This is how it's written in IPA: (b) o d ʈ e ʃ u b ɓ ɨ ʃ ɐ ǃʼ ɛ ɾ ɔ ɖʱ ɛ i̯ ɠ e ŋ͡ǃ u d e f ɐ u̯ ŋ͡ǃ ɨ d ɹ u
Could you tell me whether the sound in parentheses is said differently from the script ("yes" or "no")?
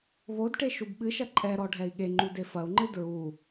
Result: yes